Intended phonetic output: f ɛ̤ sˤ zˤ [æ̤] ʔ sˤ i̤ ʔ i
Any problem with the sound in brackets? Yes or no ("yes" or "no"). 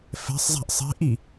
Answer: no